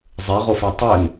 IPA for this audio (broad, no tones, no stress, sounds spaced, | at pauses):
zˤ e ʁ o f ɛ tˤ ʏ n